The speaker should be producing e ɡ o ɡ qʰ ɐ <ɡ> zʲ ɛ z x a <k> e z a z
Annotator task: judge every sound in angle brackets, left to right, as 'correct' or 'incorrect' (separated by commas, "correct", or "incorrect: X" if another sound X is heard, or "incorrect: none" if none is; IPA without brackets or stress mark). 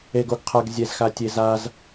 correct, incorrect: tʲ